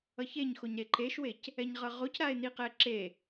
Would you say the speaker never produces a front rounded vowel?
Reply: yes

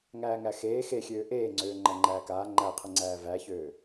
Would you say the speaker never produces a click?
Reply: no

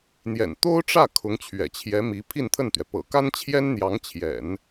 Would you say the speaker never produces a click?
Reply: yes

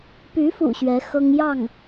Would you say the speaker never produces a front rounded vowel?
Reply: no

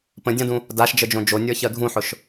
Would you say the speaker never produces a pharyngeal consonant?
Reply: no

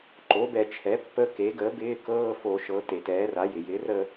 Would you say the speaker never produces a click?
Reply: no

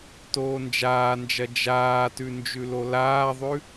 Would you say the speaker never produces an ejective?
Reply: yes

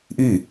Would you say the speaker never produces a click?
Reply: yes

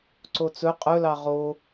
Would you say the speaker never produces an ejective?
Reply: no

